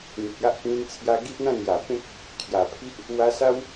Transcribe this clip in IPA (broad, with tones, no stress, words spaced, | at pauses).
ŋi˨k̚a˦ʔ pĩ˧n t͡sʰja˧ ɡi˦ʔn̪ã˥˧n ja˨˩pẽ˦k̚ | kʰja˨˩pʰi˦ʔ | wa˧sa˦w